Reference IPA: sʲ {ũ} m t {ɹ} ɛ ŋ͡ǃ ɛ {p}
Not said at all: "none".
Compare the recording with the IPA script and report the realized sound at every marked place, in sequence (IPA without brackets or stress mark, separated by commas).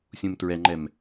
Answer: ũ, ɹ, m